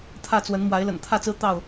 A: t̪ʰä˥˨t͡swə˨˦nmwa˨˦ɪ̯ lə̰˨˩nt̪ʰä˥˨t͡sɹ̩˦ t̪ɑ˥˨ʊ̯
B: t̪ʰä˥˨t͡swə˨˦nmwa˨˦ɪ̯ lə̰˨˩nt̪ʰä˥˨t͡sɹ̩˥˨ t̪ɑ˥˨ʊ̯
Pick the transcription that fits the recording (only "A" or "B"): A